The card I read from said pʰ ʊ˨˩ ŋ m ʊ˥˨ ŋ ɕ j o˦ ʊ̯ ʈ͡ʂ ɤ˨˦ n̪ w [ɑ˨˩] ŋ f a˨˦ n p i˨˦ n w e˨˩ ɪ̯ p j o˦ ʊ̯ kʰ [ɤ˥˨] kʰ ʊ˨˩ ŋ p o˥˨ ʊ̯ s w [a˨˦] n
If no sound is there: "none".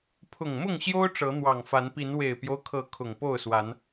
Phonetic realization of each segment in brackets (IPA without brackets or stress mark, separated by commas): ɑ˨˩, ɤ˨˦, a˨˦